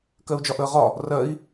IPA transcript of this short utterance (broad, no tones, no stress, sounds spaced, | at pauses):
k ɜ u̯ d͡ʒ ɒ ʔ əː ʁ ɒ | r ɜ i̯